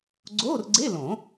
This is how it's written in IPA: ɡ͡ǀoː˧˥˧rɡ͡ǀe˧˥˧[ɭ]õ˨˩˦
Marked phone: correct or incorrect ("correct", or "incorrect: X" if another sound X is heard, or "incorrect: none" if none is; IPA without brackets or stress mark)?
incorrect: l